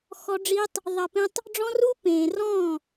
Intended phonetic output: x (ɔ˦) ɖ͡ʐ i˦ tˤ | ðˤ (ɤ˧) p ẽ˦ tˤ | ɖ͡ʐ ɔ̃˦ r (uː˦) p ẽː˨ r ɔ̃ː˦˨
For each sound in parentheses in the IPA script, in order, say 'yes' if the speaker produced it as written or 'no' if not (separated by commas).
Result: yes, yes, yes